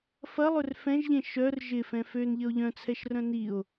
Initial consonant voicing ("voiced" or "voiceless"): voiceless